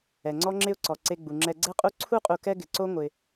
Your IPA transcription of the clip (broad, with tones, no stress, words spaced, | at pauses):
ɛ˩ŋ͡ǀɔ˦ŋ͡ǁɪ˦ʊ̯ǀɔ˩ ǀe˨ɡ͡bu˩ŋ͡ǁɛ˨ ɡ͡ǀɛ˦qʼu˦ ǀʰu˥qʼu˨kɛ˦ ɡɪ˩ ǀo˦ ŋʷɪ˩